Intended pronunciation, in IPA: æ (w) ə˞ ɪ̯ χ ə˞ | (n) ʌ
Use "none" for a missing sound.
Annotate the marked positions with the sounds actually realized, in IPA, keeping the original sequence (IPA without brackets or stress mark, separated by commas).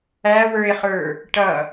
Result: w, ʈ